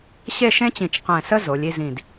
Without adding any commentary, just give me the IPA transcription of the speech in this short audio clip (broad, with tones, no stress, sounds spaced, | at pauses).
ɕ e˥˧ ʃ ẽ˥ t͡ɕ ĩ˧˩ t͡ʃ q ɛ̃˧˩ s ə˥ z o˩˧ lʲ i˥˧ z ĩ˧˩ d